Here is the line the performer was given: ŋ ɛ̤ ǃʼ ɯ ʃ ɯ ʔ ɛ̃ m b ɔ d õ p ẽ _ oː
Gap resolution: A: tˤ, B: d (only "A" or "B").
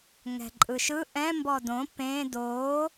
B